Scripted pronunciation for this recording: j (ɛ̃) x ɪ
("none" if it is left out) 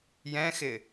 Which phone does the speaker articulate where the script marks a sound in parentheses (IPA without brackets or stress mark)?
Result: ɛ̃